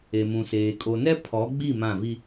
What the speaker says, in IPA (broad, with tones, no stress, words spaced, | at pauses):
e˨mũ˨seː˨ kʼo˨nɛ˦ pʰɔ˨˦ɡ͡bi˦˨ mã˦˨vi˦